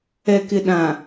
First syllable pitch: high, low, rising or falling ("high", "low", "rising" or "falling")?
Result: low